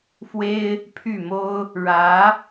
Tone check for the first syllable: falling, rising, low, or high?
high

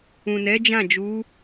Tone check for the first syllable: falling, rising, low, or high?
low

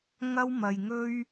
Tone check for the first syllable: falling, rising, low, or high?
high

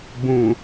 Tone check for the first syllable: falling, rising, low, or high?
low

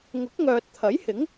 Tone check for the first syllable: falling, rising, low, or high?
rising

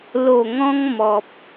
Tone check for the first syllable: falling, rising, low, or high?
low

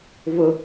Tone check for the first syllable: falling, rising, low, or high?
low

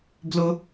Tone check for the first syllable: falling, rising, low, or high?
high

